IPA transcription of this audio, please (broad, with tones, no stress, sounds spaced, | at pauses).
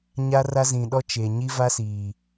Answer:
ɲ a˦ r a˦ z ĩ˨ ɗ ɔ˦ t͡ʃ e˨ ɲ i˦ v a˦ s iː˨